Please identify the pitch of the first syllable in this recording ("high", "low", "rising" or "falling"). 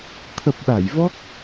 low